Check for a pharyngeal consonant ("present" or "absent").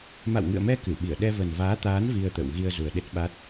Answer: absent